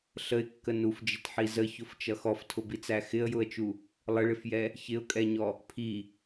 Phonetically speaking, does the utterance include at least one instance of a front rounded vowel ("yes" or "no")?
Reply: no